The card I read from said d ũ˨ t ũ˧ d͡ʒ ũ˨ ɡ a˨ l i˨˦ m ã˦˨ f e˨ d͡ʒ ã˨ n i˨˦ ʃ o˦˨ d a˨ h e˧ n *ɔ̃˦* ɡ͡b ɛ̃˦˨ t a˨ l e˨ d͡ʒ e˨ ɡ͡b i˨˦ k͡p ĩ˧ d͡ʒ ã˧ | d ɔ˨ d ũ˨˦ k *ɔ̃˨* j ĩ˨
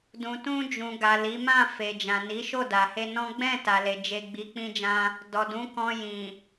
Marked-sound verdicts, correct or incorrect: correct, incorrect

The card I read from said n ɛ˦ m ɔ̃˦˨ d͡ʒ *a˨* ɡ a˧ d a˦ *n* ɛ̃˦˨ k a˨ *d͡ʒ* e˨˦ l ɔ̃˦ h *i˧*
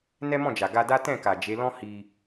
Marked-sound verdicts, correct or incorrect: correct, incorrect, correct, correct

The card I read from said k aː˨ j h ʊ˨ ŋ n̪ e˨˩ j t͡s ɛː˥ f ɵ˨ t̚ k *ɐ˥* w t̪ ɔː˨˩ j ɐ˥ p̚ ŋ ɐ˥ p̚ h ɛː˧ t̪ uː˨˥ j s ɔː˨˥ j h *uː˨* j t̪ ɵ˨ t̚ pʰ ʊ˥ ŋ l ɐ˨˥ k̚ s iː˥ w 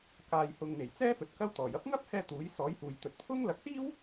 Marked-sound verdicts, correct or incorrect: correct, correct

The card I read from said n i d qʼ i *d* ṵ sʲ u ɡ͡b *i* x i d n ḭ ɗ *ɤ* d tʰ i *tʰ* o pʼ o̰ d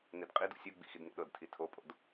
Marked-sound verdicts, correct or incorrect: correct, incorrect, correct, correct

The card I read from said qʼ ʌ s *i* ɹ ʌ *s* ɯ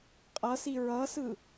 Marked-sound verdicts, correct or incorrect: correct, correct

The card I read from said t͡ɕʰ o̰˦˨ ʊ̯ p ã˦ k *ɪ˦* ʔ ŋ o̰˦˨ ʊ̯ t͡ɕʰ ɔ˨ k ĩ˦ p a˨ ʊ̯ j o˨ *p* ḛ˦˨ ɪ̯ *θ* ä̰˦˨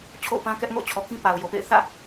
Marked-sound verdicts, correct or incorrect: incorrect, correct, correct

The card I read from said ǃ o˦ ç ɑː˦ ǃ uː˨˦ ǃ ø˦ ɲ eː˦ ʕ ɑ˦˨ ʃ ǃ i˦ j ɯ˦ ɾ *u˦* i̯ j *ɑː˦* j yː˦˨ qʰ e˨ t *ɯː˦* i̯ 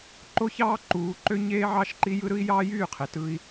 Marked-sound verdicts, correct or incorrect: incorrect, correct, incorrect

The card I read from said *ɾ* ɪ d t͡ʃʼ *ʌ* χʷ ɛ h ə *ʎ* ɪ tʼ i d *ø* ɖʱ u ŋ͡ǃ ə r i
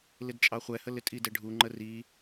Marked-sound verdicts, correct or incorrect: incorrect, incorrect, incorrect, incorrect

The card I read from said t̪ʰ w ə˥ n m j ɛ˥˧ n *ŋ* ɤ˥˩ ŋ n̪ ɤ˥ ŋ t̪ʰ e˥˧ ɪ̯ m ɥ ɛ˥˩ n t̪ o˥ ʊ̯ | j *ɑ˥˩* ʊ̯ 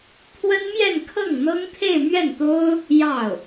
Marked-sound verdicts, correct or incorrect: incorrect, correct

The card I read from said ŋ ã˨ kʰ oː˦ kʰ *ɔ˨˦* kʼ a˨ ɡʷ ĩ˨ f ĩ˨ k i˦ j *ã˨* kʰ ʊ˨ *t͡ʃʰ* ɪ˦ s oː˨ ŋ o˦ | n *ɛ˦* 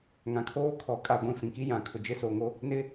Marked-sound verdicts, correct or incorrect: correct, correct, incorrect, incorrect

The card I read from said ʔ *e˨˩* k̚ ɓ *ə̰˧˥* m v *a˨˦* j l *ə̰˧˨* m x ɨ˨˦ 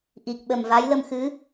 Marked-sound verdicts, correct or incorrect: incorrect, incorrect, correct, incorrect

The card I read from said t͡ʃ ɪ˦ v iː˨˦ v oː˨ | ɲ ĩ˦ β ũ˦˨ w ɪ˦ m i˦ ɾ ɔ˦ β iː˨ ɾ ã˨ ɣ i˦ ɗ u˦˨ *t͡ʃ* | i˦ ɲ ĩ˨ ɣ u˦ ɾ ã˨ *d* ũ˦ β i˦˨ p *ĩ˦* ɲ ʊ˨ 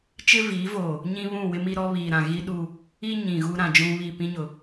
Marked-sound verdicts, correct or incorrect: incorrect, incorrect, correct

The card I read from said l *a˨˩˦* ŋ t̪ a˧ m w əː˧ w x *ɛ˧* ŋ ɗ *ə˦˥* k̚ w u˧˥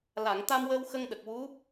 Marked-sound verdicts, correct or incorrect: incorrect, incorrect, incorrect

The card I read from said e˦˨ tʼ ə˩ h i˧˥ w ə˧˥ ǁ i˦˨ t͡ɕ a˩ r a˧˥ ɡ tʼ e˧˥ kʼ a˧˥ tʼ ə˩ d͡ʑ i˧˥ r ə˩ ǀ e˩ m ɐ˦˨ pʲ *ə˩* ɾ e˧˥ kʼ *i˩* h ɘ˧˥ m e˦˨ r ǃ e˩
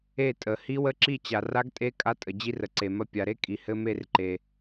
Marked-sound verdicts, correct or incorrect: incorrect, correct

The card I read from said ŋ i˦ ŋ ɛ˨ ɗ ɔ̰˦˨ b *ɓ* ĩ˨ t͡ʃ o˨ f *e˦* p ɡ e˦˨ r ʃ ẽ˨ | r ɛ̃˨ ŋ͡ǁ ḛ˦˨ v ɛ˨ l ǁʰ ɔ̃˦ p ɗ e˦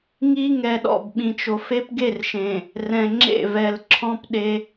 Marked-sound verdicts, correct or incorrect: correct, correct

